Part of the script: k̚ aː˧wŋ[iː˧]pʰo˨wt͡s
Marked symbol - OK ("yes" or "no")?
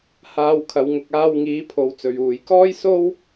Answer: no